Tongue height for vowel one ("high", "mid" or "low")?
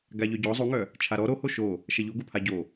low